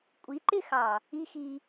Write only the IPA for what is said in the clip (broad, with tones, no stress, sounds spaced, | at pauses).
kʷʼ i˨˦ ǃ ɪ˦˨ x ɑ˨ | i˦ x i˧